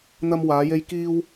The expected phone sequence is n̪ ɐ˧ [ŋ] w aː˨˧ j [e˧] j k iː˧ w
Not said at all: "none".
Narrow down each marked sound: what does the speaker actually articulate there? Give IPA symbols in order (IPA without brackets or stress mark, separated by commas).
m, e˧